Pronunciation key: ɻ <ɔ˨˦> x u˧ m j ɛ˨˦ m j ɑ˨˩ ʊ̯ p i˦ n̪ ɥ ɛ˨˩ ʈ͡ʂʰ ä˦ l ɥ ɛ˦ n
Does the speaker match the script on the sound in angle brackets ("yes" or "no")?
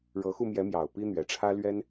no